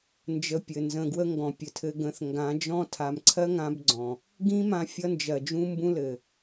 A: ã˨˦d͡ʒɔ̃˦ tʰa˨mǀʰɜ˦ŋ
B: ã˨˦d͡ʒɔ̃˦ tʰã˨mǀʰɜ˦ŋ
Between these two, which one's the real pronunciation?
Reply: A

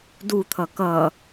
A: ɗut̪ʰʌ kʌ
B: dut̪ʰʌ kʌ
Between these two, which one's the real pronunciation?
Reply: B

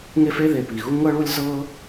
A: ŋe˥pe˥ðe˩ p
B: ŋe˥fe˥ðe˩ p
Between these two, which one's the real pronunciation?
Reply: B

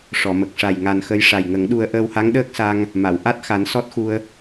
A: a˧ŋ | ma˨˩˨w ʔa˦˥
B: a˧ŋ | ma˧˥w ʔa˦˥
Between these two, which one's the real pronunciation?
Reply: A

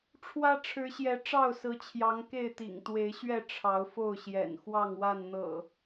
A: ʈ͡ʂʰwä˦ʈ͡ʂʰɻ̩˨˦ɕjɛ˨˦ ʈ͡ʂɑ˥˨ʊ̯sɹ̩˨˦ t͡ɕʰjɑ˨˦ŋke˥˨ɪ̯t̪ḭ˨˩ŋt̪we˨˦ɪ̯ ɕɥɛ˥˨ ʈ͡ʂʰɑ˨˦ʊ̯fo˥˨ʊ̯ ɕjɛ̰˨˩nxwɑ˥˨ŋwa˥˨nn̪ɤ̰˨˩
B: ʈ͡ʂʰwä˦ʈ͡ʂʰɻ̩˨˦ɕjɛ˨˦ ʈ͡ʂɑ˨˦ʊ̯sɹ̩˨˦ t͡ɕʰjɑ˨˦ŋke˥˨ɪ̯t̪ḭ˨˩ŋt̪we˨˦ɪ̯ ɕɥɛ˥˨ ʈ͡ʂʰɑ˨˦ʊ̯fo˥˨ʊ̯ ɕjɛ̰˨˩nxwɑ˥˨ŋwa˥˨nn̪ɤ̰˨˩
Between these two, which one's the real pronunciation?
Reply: A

